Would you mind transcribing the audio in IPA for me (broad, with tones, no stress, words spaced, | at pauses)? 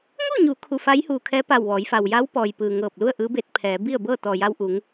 ŋu˥˨ɲu˩˧ kʰu˧˩fa˧˥j huː˩kʰɛː˧˥pa˧˩w ʋɔː˩˧j fa˩wja˧˥w pɔː˩jpɯː˩ŋɤː˧˩p̚ lu˥˨ə̯ʔɯː˧˥ be˧˥t̚pʰɛː˩˧ bi˥˨ə̯bɤː˥˨ t̪ɔː˩ja˧wʔu˩˧ŋ